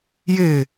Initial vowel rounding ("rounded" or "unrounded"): unrounded